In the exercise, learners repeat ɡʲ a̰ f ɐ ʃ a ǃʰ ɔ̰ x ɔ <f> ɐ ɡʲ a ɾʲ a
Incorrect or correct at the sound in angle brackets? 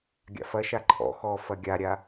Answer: correct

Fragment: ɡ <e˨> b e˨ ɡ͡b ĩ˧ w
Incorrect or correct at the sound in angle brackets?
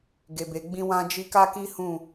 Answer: correct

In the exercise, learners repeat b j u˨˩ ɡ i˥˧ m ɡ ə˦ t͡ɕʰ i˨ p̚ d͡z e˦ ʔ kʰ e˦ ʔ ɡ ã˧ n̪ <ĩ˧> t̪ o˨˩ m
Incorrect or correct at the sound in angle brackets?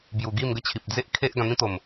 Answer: incorrect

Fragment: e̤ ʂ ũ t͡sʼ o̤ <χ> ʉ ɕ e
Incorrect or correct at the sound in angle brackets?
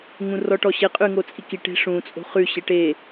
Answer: correct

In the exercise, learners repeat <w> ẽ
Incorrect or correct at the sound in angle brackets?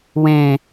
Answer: correct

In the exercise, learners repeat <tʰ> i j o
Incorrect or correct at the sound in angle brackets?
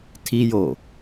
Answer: correct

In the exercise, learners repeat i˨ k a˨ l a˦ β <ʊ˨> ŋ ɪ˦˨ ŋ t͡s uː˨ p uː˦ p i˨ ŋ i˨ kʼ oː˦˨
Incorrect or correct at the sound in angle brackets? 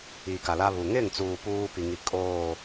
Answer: incorrect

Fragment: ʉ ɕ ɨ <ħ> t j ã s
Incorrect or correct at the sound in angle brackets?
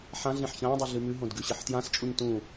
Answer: correct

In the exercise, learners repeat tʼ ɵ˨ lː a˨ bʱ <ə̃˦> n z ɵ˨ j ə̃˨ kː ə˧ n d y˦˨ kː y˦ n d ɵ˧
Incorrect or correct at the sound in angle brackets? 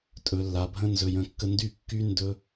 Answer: correct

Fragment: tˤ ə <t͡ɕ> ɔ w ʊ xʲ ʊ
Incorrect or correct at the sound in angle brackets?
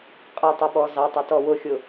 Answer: incorrect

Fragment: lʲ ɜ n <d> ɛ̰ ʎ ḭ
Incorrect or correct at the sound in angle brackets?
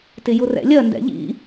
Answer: correct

